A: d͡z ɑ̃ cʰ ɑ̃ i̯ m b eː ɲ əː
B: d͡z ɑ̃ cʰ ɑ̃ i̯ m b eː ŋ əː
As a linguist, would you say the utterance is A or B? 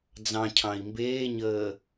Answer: A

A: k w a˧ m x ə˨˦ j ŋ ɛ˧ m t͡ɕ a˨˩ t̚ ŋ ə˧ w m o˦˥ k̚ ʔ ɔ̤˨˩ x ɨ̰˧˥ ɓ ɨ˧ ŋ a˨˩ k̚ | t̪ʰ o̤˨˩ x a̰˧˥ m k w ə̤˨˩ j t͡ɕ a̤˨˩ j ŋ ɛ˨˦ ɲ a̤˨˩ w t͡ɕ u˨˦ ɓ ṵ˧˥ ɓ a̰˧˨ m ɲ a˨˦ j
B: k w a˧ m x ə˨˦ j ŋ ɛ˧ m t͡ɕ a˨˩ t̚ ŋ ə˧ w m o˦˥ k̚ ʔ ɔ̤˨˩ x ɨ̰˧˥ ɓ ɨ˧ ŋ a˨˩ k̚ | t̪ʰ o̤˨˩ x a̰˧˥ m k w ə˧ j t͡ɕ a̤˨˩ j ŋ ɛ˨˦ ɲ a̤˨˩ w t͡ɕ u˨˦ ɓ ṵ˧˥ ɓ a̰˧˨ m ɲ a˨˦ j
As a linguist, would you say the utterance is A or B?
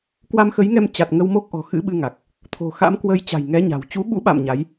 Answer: B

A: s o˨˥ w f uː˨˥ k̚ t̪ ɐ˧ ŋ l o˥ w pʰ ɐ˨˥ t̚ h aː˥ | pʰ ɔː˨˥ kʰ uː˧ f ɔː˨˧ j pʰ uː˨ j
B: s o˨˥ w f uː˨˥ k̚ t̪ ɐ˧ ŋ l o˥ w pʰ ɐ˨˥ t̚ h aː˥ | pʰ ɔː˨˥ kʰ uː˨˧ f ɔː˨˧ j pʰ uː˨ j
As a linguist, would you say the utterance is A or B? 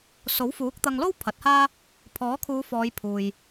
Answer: B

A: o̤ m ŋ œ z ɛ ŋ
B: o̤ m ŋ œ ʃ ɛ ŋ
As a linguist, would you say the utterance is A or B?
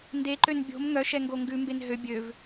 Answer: B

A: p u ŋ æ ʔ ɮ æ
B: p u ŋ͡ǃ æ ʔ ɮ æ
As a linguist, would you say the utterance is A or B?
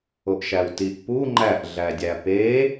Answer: B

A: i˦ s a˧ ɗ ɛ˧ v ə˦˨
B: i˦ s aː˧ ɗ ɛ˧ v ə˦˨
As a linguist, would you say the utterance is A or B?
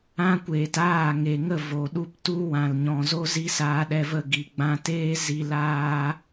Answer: B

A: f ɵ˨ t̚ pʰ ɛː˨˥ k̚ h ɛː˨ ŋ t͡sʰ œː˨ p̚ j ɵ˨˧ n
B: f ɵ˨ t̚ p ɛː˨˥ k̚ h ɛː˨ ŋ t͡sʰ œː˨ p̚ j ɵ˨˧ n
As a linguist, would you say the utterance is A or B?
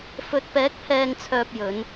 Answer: B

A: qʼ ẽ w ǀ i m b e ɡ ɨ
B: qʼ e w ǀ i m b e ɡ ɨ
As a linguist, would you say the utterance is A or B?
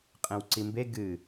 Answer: A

